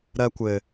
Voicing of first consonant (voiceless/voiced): voiced